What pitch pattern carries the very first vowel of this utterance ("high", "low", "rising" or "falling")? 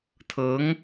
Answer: rising